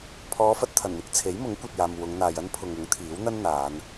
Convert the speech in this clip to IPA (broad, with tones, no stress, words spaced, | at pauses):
pʰɔː˨˧fɐ˨t̚t̪ʰɐ˨˩nn̪ɪ˧k̚ t͡sʰe˨˥jmʊ˨˥ŋ kʷɐ˨t̚jaː˨m wʊ˨˧ŋn̪aː˨j ɐ˥npʰʊ˨ŋ ʊ˨˥ŋt̪ʰiː˨˥wn̪ɐ˥n n̪aː˨˧n